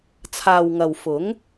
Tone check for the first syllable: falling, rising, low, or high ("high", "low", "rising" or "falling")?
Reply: low